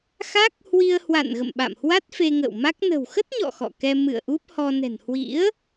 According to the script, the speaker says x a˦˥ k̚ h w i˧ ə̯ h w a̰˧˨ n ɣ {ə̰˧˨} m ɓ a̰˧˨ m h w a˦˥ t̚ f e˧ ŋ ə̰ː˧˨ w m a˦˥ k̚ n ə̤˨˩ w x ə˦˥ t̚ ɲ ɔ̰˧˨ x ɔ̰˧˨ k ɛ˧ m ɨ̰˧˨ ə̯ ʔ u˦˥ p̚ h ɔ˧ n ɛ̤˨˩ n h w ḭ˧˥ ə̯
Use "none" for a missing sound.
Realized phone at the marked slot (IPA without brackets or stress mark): ə̰˧˨